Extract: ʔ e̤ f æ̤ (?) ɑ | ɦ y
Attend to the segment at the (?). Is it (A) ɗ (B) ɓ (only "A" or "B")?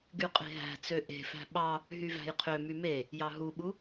B